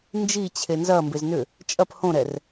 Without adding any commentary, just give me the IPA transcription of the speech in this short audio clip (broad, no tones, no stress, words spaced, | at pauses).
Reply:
nd͡ʒit͡ɕʰe nzɐmbez nʏ | t͡ʃʼɐp hõɾɛr